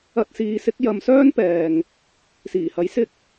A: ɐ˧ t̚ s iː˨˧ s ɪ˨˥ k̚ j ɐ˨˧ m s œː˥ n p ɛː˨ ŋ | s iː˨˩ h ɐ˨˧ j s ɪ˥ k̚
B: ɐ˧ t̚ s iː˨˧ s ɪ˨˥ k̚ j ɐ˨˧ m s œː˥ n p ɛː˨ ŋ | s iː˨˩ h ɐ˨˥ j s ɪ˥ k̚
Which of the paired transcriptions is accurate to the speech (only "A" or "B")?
B